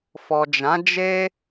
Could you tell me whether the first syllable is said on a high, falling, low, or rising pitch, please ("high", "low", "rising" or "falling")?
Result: low